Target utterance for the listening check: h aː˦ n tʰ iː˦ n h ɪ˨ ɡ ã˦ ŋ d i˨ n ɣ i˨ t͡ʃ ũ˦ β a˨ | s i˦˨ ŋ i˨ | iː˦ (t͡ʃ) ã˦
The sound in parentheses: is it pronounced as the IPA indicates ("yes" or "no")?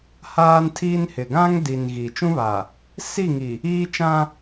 yes